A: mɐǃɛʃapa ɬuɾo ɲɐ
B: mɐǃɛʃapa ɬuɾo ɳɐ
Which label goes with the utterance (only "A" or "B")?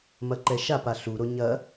A